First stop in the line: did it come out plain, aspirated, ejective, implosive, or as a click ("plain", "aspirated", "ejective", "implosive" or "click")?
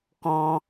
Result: plain